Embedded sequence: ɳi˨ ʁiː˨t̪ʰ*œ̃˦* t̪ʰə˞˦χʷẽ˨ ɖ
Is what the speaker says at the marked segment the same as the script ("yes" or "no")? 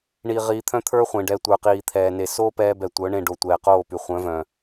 yes